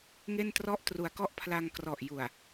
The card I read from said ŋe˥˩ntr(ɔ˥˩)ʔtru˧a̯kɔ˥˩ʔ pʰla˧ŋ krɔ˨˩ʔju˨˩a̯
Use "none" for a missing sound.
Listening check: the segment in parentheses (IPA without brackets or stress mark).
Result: ɔ˥˩